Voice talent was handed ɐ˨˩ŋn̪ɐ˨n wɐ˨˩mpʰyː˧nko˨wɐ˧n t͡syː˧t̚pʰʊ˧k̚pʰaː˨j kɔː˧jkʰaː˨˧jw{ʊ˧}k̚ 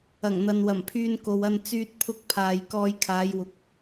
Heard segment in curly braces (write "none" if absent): ʊ˨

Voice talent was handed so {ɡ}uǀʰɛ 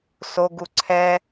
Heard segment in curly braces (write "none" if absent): ɡ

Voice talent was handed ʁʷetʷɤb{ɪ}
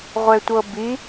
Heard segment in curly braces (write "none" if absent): i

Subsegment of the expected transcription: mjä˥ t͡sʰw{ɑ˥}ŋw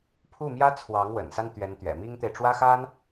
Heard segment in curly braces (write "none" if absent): ɑ˧˥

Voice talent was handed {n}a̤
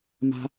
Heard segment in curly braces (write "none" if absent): m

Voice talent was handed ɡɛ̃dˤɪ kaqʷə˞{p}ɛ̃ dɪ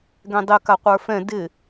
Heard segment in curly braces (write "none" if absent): f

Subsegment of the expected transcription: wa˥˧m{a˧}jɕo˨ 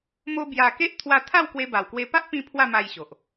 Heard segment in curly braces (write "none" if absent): a˧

